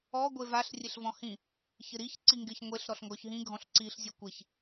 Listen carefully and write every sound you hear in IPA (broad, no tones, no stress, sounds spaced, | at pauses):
ɔ ɡʷ e v a ɬ rʲ e ɬ v ɔ̃ h ĩ | ç ɪ ɾ i ç ǀ i ŋ ɡ ɪ ç ŋʷ e ɬ ɾ ɔ ɬ ŋ ɡ ɔ ç ɦ ĩ ɡʱ ɔ̃ ɬ ǀ i ɬ zʲ ɔ kʷ e ç